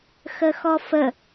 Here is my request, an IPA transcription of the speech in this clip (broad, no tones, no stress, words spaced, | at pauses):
xəxɔfə